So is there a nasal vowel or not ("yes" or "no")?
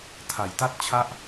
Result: no